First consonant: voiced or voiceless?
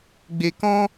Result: voiced